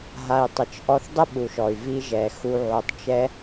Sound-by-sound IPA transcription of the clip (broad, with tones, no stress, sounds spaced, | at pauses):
ɦ a˨ i̯ tˤ ə˨ t͡ʃ ʔ ɔ˧ θ dˤ ə˦ ɓ u˨ ʃ ɔ˨ y̯ v i˧ ʒ ɛ˨ x u˧ ʕ o˧ tˤ t͡ʃ ɛ˦